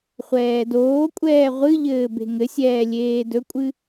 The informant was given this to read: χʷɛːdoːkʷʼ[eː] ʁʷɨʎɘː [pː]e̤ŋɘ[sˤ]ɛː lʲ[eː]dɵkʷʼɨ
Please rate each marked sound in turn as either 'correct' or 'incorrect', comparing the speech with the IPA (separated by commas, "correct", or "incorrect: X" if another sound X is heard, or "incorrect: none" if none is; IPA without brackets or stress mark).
incorrect: ɛː, incorrect: b, incorrect: sʲ, correct